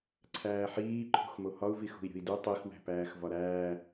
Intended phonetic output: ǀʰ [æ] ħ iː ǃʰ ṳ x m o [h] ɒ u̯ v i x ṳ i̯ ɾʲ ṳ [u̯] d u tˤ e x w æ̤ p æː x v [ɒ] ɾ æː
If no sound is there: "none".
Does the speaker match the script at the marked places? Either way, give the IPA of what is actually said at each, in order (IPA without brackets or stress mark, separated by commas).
æː, h, i̯, ɒ